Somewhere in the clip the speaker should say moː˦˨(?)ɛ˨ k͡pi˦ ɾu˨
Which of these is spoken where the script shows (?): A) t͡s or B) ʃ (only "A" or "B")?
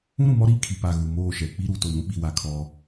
B